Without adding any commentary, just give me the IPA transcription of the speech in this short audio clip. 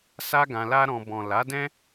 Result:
sa˦ɡã˧la˦ɾɔ̃˧ bɔ̃˨ la˨˦dɛ̃˦

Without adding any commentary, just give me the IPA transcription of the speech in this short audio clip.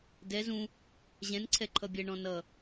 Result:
dɛz ũ | ʑɛ̃n ǀʰɛǃʰʌbʲɛ ɳɔ̃nʌ

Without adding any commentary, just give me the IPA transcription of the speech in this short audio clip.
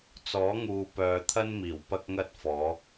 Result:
t͡sɔː˨˥ŋuː˨pœː˨t̪ʰɐ˥n miː˨˩wpɐ˥k̚ŋɐ˥t̚fɔː˨˥

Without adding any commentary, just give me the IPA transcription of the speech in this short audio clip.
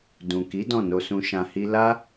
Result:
dũ˨ki˨˦ dɔ̃˦˨no˧sũ˧ ʃã˧hi˦ la˦

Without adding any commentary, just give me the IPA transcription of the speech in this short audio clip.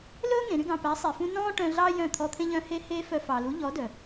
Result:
lɵː˦ŋẽ˨ɾy˧ɡɑ̃˨ pæ˨˦sˤe˨fũ˧nɔ̃ː˦ ʈœ̃˧ɮɑ˦ jœ̃˦˨ t̪ʰɔ˧t̪ʰẽ˦ʎœ̃˦ he˦heː˦fœ˧ fɑ˨lu˨˦ ʎɔ˨˦dœ˨

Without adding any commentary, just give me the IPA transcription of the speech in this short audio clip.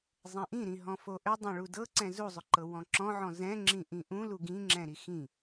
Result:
zˤɛ̃ʔĩɾĩ ɦɔ̃foʔʏ dˤɛ̃ɭudɤǀɛ̃ zuzˤʏǃɤ wɔ̃ǁɔ̃ʕɔ̃ zɛ̃ŋ͡ǁĩ ʔĩʔũlu ɡĩŋ͡ǁɛ̃ ɾixĩ

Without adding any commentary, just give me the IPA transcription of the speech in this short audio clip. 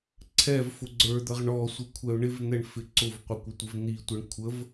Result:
ǀʰɛv fʊɡ͡ǀə˞d̪ʌʁ ɳɔsʷɪ kʷʰɛʊ̯ɳɪvn̪ɛɳ fɪǀʊvqʷə kʷətʷɪvn̪itʷɛɳ kʷʰəv

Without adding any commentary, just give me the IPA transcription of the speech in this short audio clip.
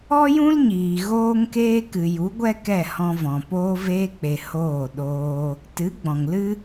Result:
ɔ˦jũ˦lɲiː˨ ɣoː˦ŋkeː˦kɨ˨ ju˨˦ɡʷɛ˦ kɛ˦˨hɔ̃˧vɔ̃˨ poː˧veː˧k͡pe˨ hoː˦˨ ɗoː˧ | tɨ˨˦ ɡ͡bɔ̃˨ŋlɨ˦

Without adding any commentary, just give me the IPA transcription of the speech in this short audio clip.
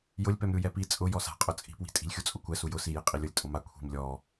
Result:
jʊlʲpɛmɾʲu jɛpi t͡sʼʊ jɔsa̤qʼʊ t͡sʼi̤pwi̤ tʼi̤lʲxʲut͡sʼʊkʷɛ sujʊ sije qʼilʲʊlʲ tʼʊma kʷʰi̤m lʲɔ

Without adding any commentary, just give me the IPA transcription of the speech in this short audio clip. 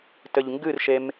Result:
tɘʎŋɡɨrʃem

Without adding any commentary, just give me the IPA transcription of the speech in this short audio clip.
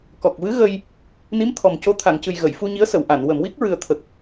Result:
kɔ˨˩k̚vɨ˧˥ ɣə˧j | ni˧˥m t̪ʰɔ˨˩mco˧˥ t̪ʰa˨˩˨ŋcɨ˨˩j ɣə˨˩˨jfu˧ɲi˧˥ə̯ sə˨˩˨wʔa˨˩˨n wə˨˩˨mwi˦˥k̚ɹɨ˨˩ə̯ t̪ʰə˨˩k̚

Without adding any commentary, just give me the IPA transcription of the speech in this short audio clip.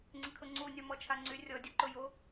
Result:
ŋ͡ǀɪkʰʊŋ͡ǀu nʲɔmɔt͡ʃʰaŋ͡ǀy rʲɔ dʲɐǃʊjo

